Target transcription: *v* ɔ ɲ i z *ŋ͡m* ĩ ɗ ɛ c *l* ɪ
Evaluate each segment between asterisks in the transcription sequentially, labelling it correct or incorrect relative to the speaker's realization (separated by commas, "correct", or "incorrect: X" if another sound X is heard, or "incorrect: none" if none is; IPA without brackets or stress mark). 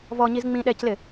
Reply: correct, correct, correct